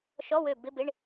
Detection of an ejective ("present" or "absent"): absent